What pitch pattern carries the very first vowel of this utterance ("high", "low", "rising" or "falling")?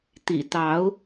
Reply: low